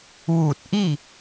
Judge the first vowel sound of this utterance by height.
high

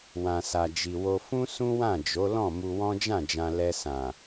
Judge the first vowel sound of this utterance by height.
low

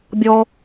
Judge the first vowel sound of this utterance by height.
mid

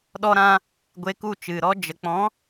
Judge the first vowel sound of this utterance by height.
mid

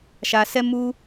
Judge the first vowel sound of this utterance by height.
low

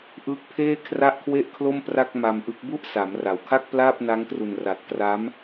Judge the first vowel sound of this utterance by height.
high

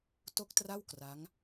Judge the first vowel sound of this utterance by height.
mid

